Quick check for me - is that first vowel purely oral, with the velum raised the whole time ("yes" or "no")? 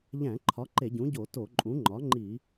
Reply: no